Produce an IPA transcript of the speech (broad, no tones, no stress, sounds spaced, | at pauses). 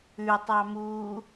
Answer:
ʉ tˤ ɑ m uː